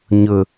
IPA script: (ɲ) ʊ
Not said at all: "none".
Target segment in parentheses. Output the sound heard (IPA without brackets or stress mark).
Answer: ɲ